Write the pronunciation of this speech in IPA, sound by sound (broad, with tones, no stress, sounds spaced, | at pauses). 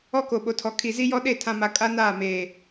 ɔ˦ k o˨ ɓ o˨ tʰ ɔ˨ kʰ i˨ z i˦ j ɔ˦ ɗ e˦˨ tʰ ã˨ m a˨ kʼ a˦ n aː˦˨ m eː˨